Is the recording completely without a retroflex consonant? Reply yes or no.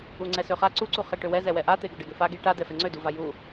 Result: no